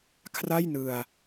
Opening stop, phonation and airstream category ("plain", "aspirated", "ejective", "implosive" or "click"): aspirated